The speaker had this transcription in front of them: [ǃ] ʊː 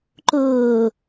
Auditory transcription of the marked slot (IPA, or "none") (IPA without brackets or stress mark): ǃ